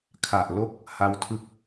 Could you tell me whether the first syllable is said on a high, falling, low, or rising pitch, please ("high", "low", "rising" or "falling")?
low